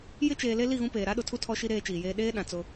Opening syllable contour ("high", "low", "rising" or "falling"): high